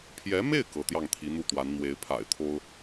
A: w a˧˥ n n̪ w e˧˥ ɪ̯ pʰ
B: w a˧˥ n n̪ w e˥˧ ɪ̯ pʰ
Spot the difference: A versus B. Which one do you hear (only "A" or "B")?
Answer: A